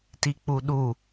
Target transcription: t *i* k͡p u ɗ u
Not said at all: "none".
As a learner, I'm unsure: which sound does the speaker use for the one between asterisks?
i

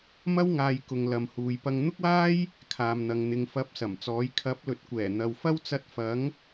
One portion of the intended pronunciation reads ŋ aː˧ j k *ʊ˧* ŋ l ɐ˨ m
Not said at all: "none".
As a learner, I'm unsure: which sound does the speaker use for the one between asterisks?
ʊ˨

